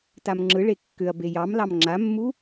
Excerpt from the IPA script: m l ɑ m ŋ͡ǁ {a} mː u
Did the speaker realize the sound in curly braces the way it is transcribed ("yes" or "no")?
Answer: yes